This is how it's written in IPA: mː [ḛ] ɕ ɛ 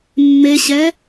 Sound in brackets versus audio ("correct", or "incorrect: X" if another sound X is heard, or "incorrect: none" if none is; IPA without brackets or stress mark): incorrect: e